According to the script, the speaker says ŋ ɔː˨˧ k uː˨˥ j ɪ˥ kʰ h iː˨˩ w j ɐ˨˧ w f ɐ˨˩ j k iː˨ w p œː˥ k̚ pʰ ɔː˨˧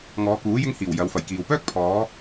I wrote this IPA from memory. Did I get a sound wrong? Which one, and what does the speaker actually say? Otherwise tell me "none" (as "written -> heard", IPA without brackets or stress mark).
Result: kʰ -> ŋ